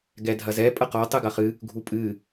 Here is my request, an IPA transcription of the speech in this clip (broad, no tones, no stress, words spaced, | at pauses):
ɡɛdʱɐzɛ pʼɐqɔ tˤɨɡɐχɨ | ɡʱupʼɨ